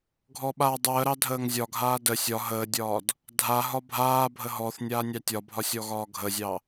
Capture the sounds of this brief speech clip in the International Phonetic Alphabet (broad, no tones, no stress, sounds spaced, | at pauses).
ɡʱ ɔ ɓ aː dˤ əː ɾ ɑ dʱ əː ŋ zʲ ɒ ɡʱ aː d ə sʲ ɒ ɦ əː dʲ ɒː d | dʱ a ɦ ɒ bʱ aː bʱ ə ɦ ɔ θ nʲ aː nʲ ɑ tʲ ɒ bʱ ɒ sʲ ɔ ɣ ɒː ɡʱ ə zʲ ɑ